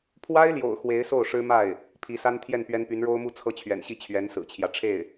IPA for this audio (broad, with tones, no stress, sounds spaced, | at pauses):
pʰ w a˥ ɪ̯ l j o̰˨˩ ʊ̯ x w e˧˥ ɪ̯ s o˥˩ ʊ̯ ʂ ɻ̩˥ m a˥˩ ɪ̯ | pʰ i˧˥ s a˥ n t̪ʰ j ɛ˥˩ n p ɥ ɛ˥ n p y˧˥ n ɻ o˥ ʊ̯ m u˥˧ t͡sʰ ɤ˥˩ t͡ɕʰ ɥ ɛ̰˨˩ n ɕ i˥˩ t͡ɕʰ ɥ ɛ˧˥ n s ɹ̩˨˩ t͡ɕʰ j ä˦ ʈ͡ʂʰ e˥˩ ɪ̯